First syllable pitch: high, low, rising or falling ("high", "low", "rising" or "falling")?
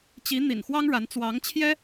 rising